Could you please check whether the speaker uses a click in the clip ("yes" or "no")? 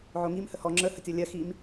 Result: yes